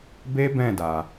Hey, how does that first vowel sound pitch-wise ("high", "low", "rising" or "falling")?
high